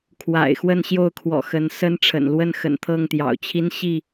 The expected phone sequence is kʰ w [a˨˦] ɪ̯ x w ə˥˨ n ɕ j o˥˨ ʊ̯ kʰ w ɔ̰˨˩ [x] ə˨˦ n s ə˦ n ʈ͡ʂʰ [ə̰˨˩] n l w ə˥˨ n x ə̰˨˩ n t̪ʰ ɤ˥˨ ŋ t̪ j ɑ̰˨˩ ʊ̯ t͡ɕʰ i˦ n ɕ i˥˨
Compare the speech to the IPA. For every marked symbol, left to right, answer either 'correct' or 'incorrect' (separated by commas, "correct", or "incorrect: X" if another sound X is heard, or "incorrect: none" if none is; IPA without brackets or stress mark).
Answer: incorrect: a̰˨˩, correct, correct